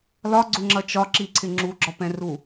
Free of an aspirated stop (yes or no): no